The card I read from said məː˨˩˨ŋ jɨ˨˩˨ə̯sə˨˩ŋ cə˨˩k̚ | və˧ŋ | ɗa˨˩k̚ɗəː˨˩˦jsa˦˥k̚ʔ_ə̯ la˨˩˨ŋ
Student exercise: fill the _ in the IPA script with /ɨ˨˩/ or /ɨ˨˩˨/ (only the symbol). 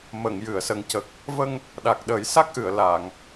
ɨ˨˩˨